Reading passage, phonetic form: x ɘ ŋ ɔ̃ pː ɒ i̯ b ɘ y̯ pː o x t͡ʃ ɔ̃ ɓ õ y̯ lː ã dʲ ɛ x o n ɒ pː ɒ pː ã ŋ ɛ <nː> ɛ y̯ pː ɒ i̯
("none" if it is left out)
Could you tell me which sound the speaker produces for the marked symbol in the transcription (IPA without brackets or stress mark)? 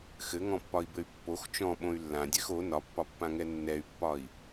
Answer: nː